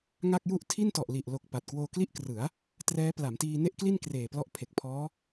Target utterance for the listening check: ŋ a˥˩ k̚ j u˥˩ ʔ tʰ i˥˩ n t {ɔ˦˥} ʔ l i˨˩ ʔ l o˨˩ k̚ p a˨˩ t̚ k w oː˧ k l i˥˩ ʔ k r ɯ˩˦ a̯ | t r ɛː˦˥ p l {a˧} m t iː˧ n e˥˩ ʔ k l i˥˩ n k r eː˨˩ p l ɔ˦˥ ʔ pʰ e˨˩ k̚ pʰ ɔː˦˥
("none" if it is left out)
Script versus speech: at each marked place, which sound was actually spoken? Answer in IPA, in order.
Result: ɔ˨˩, a˩˦

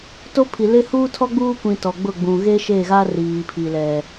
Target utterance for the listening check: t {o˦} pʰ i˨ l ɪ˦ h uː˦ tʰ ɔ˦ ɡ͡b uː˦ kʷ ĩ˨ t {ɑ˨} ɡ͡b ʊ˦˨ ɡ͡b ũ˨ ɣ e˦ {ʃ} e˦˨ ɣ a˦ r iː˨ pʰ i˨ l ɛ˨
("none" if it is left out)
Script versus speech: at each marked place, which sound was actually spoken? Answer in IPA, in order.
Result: o˦, ɔ˨, ʃ

